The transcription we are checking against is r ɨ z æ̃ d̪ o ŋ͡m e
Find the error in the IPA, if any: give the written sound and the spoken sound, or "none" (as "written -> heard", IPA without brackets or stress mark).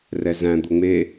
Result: ɨ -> ɛ